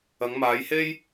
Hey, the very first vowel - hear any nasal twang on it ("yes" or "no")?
no